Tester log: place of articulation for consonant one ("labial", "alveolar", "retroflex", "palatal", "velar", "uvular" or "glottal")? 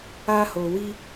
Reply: glottal